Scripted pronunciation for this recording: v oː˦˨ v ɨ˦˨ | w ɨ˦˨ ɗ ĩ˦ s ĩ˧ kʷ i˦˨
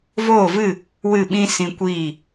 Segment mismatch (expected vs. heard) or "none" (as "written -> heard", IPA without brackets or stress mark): ɗ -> ɓ